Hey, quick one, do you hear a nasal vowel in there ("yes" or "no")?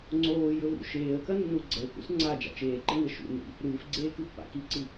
no